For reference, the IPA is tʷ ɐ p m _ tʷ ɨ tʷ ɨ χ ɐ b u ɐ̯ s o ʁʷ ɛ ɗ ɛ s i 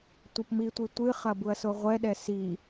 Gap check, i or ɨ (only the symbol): i